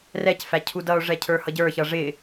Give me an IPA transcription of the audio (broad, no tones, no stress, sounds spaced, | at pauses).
r ɛ c f æ cʰ u d ʌ o̯ ʐ ɛ cʰ ə˞ h ʌ ɟ ə˞ ç ʌ ʐ ɪ